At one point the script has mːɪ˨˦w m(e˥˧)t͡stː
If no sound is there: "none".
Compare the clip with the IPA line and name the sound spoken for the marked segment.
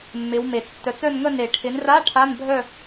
e˨˩˦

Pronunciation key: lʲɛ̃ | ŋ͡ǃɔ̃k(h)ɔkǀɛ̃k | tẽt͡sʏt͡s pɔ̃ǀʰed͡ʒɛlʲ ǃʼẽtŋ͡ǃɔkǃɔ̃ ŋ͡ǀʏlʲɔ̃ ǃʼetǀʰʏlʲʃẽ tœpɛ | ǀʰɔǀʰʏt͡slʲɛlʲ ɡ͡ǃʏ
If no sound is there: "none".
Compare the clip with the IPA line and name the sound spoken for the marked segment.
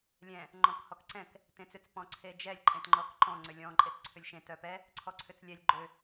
h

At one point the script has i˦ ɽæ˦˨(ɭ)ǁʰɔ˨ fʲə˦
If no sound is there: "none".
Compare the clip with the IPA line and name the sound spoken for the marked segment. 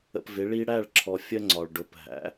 ɭ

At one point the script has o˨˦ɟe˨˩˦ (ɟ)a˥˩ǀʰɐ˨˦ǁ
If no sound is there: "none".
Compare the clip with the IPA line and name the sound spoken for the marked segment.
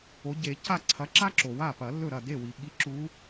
c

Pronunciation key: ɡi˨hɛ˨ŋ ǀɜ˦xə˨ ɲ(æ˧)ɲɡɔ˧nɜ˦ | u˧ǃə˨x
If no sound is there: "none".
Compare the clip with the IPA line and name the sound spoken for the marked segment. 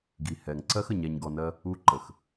æ˧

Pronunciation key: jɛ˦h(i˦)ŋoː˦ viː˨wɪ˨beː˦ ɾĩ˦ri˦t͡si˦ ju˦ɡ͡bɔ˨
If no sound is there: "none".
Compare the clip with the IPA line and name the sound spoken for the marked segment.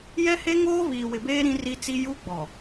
e˦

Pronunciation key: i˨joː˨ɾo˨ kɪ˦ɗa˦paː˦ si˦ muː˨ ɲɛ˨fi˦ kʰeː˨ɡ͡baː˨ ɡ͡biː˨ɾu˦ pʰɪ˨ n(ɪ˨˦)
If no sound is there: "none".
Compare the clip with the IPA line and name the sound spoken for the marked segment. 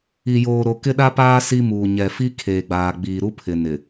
ɪ˨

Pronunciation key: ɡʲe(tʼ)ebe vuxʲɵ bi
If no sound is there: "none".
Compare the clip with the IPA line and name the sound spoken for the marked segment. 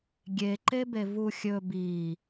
ǃ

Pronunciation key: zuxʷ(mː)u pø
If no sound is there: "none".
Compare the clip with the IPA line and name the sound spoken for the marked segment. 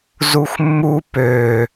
mː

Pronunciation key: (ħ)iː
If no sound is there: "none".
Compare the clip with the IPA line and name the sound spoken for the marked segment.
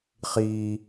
χ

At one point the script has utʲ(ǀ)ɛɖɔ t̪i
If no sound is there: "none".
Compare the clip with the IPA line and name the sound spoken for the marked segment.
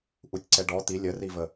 ǀ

